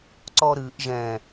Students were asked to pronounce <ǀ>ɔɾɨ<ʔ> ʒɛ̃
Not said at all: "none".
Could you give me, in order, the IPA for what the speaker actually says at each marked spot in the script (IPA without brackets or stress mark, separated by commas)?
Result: ǀ, ʔ